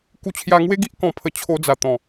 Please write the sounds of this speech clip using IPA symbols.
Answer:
k u˧ t͡ɕʰ j a˧ ŋ w e˦ ɡ i˦ ʔ k ɔ̃˧ pʰ ə˧ t͡ɕʰ o˧ d͡z a˨˩ t̪ ɔ̃˨˩

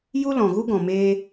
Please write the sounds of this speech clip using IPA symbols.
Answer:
j u˦ l ɔ̃˨ ɣ u˦ ɡ ɔ̃˨ m eː˧

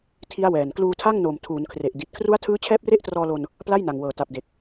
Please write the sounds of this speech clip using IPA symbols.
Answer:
tʰ i˦˥ a̯ w ɛː˨˩ n k l uː˧ tʰ a˥˩ ŋ n oː˨˩ m tʰ uː˩˦ n kʰ r e˨˩ ʔ d i˨˩ t̚ kʰ r u˦˥ a̯ tʰ ɯː˦˥ t͡ɕʰ ɛː˦˥ p̚ r e˦˥ ʔ t r ɔː˧ l o˧ n | p l a˥˩ j n a˨˩ ŋ w ɤː˨˩ t a˨˩ p̚ d e˨˩ k̚

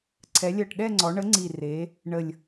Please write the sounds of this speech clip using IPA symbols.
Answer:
ǀʰ ɛ˩˧ lʲ ɜ˨˩ ʈ ɗ ɛ˥˧ ŋ͡ǀ ɔ˩˧ ɳ ə˨˥ ŋ͡ǀ i˨˩ r e˩˧ | ɳ ə˨˩ lʲ

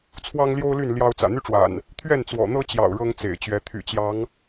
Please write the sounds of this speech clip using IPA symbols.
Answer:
t͡sʰ w ɑ˦ ŋ l j o˦ ʊ̯ l y˥˨ n l j ɑ˦ ʊ̯ t͡s ä̰˨˩ n̪ y˦ ʈ͡ʂ w a̰˨˩ n | t̪ʰ ɥ ɛ˥˨ n t͡s w ɔ̰˨˩ n̪ ɤ˦ t͡ɕ j ɑ̰˨˩ ʊ̯ ɻ ɤ˦ ŋ t͡s ḛ˨˩ ɪ̯ t͡ɕ ɥ ɛ˨˦ t̪ʰ y̰˨˩ t͡ɕ j ɑ˨˦ ŋ

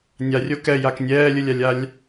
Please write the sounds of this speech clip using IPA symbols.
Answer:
nʲ a rʲ o k ɛ j a k nʲ ɛː lʲ ɯ lʲ a lʲ a lʲ

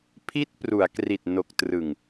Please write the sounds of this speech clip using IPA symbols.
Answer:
pʰ i˦˥ t̚ p r u˩˦ a̯ k r i˨˩ t̚ n o˨˩ k̚ t r ɯ˨˩ ŋ

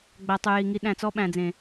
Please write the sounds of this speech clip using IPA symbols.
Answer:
ɡ͡b æ˨ tˤ ʉ˨ j i˨ ŋ i˨˦ ɗ æ̃˨ t͡s ɔ˦ ɓ æ̃˨ d͡z ẽ˨

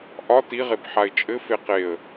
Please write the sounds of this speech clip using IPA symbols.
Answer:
ʔ ɒ t i ʁ e b ħ a ɪ̯ t͡ʃʼ ɘ f e q e ə̯

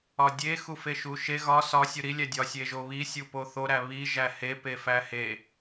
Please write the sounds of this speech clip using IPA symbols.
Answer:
ɒ dʲ e x u f e ʃ u ʃ e ɣ ɒ s ɒ sʲ u ɾ i lʲ æ dʲ ɒ sʲ e ʒ o β i sʲ u p o θ o ɾ æ β i ʒ æ h e p e f æ h e

